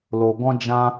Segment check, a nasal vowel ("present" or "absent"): present